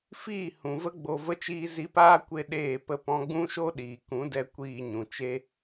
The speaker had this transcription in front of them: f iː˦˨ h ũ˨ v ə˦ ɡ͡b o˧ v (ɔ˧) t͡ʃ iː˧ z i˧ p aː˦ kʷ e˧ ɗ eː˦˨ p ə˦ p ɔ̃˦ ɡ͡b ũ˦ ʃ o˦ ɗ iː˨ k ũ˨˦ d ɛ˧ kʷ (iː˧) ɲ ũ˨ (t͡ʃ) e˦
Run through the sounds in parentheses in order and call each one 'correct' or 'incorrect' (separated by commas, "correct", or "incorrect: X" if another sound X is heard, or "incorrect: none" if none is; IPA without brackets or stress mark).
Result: incorrect: ə˧, correct, correct